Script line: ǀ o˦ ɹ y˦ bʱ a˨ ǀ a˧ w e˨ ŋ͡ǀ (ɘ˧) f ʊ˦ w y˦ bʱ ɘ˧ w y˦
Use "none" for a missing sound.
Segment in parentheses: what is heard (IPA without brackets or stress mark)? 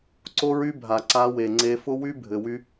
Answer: e˧